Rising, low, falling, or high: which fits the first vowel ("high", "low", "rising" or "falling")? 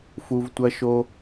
high